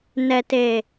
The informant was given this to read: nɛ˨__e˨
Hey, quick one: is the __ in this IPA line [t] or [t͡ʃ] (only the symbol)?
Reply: t